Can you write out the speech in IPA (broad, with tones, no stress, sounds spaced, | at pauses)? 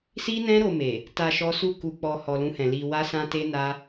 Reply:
s i˦ n ɛ̃˦ ɾ o˧ m e˨ | t a˧ ʃ ɔ˦ s u˦˨ k u˧ k͡p ɔ˧ h ɔ˧ l ũ˦ h ɛ̃˧ l i˧ w a˦ s ã˦ t e˦ n a˦